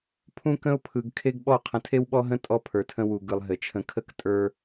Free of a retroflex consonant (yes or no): yes